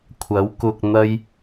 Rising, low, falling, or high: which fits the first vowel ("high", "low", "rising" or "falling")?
rising